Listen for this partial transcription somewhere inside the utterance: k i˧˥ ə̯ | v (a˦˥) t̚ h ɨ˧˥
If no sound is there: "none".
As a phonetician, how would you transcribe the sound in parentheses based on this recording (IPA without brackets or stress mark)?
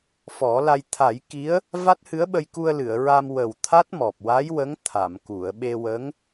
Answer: a˦˥